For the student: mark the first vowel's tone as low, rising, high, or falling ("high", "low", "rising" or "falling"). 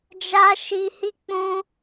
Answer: high